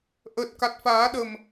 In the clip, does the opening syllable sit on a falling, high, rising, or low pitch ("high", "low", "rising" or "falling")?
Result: low